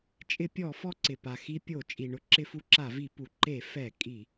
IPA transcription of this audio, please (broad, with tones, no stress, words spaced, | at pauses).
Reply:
t͡ʃʼɪ˧˩˧pʲɔ˧˩˧ fɔ˧ǀɪ˩ pa˩xi˧pʲo˧˩˧ t͡ʃʼi˩ɳʊ˧ ǁɪ˧fu˧ǁa˧˩˧vi˧˩˧ pu˩ǃe˧˩˧ fɛ˧˩˧kʼi˧˩˧